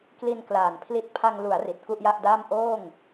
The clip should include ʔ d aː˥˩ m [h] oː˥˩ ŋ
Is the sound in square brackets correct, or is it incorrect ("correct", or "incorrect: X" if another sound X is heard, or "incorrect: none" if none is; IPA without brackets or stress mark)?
incorrect: ʔ